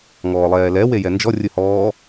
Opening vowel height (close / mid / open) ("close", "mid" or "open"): mid